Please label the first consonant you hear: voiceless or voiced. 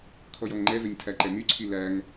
voiceless